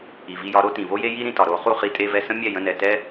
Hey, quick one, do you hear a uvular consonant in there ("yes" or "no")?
yes